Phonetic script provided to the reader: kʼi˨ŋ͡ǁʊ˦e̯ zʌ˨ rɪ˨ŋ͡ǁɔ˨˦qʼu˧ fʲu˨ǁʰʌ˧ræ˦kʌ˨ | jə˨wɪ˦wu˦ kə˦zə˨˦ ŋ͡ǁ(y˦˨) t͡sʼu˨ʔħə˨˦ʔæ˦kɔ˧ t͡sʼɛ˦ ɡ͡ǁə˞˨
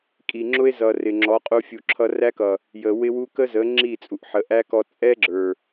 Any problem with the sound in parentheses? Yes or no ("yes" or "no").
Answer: yes